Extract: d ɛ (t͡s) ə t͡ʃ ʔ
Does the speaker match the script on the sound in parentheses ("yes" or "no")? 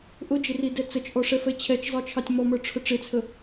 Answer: yes